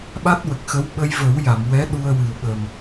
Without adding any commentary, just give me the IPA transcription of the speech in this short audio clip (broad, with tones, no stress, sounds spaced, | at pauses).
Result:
ɓ a˦˥ t̚ w ə˨˩ k̚ x ə˧˥ w ɓ ə˧ j v ə˨˩˦ w j a˨˩˨ m w ɛ˧˥ ɗ u˧ ə̯ w ɨ˨˩ w ɓ ə˨˩ m